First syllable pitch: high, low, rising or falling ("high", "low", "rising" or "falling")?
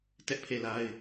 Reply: high